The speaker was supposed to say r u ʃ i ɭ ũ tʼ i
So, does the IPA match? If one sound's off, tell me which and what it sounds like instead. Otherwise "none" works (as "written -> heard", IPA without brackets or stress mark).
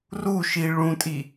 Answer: none